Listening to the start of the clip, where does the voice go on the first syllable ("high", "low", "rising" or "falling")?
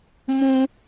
high